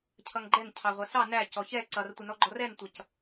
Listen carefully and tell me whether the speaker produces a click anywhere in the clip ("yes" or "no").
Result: yes